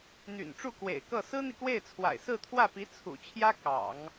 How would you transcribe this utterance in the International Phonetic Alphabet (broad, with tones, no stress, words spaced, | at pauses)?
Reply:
n̪y̰˨˩n ʈ͡ʂu˥˩kwḛ˨˩ɪ̯kɤ˥˩ sɹ̩˥n̪i˨kwe˥˩ɪ̯t͡sʰwa̰˨˩ɪ̯ sɹ̩˥˧t̪ʰwä˥˩pi˧˥ t͡sʰṵ˨˩t͡ɕʰjä˥ kɑ̰˨˩˦ŋ